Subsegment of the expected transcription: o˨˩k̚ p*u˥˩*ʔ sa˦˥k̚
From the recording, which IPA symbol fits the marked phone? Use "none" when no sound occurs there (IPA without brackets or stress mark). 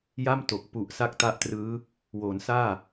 u˨˩